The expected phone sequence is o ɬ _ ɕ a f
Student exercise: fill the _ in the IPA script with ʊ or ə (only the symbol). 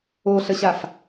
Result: ə